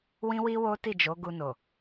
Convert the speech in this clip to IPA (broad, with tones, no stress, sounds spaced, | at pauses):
w ĩ˦ w i˦ w o˦ t i˦˨ d͡ʒ o˨˦ ɡ u˧ n o˨